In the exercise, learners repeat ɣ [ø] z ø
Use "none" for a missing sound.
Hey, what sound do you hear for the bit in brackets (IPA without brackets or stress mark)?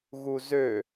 u